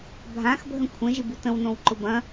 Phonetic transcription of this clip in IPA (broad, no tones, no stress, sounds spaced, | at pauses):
bʱ ã x bʱ ə̃ kʷʰ ə̃ ʒ ɪ b u t ə̃ w n õ w ǃ ʊ b ɐ̃